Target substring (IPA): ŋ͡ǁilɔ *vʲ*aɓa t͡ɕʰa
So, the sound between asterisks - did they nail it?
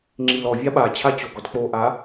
yes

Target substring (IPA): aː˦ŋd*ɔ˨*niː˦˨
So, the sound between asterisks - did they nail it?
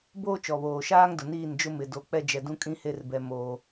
no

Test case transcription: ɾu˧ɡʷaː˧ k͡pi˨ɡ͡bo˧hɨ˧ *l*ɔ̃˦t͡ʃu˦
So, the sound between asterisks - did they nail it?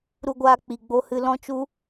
yes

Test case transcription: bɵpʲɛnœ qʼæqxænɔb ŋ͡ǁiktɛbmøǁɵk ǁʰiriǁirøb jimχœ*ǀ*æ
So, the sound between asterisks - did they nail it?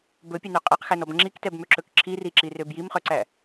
yes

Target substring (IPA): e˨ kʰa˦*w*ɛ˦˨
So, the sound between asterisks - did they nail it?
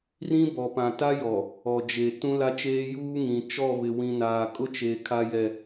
no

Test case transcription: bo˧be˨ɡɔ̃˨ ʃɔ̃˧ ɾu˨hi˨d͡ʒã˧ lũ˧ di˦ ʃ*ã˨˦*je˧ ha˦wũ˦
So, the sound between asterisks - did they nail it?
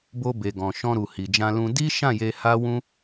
no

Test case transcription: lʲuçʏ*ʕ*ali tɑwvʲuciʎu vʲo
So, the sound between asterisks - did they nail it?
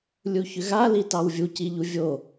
no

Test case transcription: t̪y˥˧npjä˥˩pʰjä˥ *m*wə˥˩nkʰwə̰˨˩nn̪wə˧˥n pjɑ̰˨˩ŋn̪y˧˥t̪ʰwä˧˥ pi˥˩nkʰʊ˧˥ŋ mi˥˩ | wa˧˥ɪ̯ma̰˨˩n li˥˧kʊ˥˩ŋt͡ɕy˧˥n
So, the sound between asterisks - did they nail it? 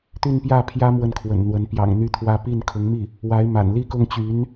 yes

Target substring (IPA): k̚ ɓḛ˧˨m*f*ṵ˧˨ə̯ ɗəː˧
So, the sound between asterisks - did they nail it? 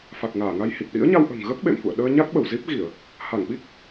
yes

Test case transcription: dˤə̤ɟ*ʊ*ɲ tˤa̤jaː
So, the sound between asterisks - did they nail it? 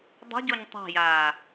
no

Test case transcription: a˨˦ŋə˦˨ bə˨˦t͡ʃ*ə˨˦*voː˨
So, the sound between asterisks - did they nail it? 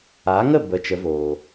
yes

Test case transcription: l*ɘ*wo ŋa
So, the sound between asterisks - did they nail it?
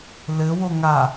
yes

